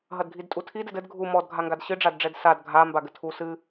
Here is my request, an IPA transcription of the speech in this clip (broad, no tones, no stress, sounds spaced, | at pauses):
ɦ ɐ d ɡʱ i d tʼ u tʰ i d ɛ d ɘ d ɡʱ u m ɔ d ɡʱ a ŋ ɡ a d ɕ ɨ ɖ͡ʐ a d ɖ͡ʐ ɛ d s a d ɡʱ a m b a ɡ ɘ tʰ u s ɨ